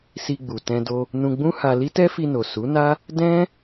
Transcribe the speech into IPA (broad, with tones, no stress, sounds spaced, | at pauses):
s i˧ ɡ͡b u˨ t ɛ̃˧ d o˧ | n ũ˧ ɡ͡b ũ˦ h a˧ l i˦ t ɛ˦ f i˧ n o˨ s u˨˦ n a˦ | d ɛ̃˦